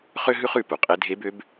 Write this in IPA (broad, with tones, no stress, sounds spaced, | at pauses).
χ ø˥ ɦ ʉ˥ χ ʉ˧ p u˩ qʼ e˧˥ dʱ e˧˥ b ø˧˥ b